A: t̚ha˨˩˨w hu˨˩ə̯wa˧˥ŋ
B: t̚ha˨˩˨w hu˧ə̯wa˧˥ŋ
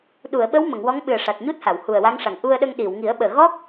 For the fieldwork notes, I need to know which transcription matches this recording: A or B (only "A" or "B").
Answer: A